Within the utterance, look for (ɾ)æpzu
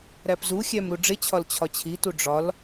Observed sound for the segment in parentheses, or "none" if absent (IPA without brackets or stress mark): ɾ